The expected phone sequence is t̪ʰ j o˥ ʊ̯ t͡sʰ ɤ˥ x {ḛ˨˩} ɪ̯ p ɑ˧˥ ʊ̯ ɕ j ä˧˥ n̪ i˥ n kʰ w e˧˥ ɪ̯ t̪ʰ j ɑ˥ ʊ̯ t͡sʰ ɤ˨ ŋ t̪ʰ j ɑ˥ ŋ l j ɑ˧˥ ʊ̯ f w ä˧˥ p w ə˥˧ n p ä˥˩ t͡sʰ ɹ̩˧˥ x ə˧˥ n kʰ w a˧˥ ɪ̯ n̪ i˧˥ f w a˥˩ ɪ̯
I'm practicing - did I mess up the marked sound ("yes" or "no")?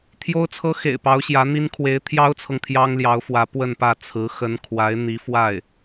no